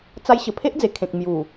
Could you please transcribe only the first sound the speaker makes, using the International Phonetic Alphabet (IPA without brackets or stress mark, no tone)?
t͡s